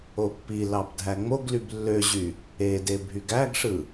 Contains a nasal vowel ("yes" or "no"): no